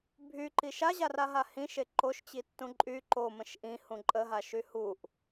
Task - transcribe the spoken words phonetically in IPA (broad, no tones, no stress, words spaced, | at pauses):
bʱyǃi ʃaʑaraɦa hĩʃe ǃoʃt͡ɕitːũ ǃʼy ǃomə̃ʃ ʔĩhũ ǃʼəɦaʃy huʔ